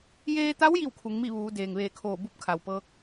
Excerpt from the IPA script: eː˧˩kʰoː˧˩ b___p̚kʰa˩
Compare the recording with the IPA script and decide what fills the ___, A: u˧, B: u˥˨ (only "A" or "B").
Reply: B